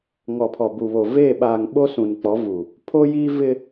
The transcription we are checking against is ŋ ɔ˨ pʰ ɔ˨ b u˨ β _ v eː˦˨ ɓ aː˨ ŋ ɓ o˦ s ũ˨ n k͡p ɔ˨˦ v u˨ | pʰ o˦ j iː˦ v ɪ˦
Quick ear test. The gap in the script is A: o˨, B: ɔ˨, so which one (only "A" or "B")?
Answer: A